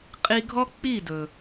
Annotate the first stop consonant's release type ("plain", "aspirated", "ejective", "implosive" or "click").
ejective